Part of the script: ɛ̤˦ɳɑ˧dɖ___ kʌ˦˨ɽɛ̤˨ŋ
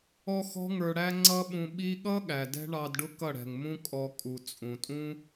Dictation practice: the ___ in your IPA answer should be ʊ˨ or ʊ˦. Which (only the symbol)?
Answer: ʊ˦